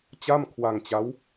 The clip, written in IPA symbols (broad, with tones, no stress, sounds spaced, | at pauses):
t͡ɕ a˥˩ m kʰ w a˧ ŋ t͡ɕ a˦˥ w